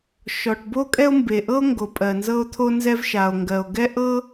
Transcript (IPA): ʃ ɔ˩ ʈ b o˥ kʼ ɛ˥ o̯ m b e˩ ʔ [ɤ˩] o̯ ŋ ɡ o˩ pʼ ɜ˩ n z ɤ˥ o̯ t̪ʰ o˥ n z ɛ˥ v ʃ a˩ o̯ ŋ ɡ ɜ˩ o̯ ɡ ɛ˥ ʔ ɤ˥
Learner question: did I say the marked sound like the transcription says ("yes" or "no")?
no